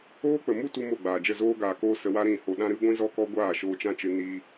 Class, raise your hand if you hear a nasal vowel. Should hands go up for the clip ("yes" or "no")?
yes